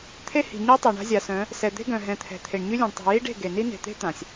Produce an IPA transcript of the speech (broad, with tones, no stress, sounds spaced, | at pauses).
t̪ʰ e˦ h i̤˨ ɲ ɛ˦ tˤ ɛ˨ ɳ a̤˦ zʲ a˨ s œ̃˨˦ | s ɛ˨ d̪ e̤˦ ɡ œ̃˨ ɦ ɛ̃˨ t̪ʰ ɛ̤˨ t̪ʰ e˨ ɳ ɲ y˦ lʲ õ˨ ɳ tˤ i̤˨ j i˦ ɖ e̤˦˨ ɡ e˨ n i˦ n e̤˨ t̪ e̤˦ t̪ ã˨ sʲ